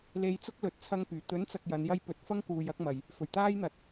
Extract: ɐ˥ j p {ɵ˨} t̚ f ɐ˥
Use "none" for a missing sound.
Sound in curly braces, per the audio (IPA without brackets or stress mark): ɵ˨˥